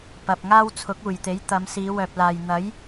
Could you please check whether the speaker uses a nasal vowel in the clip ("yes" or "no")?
no